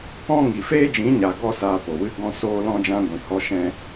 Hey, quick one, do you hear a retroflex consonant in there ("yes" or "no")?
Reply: no